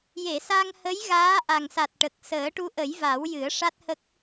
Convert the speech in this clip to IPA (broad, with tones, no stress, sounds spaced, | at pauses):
j e˨˩˨ s a˧ ŋ h ə˧˥ j ɣ aː˧˥ ʔ a˨˩ ŋ s a˨˩ t̚ ʈ ə˨˩ k̚ s əː˨˩˦ ʈ u˧˥ ʔ ə˨˩˦ j v a˨˩˦ w j ɨ˨˩˦ ə̯ ʂ a˦˥ t̚ h ə˦˥ k̚